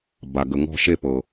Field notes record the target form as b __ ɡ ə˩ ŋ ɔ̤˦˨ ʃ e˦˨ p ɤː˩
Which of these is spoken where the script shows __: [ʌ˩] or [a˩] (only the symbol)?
a˩